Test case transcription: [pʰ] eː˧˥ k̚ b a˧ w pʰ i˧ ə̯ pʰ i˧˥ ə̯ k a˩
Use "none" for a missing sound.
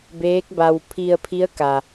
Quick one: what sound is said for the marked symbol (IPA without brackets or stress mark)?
b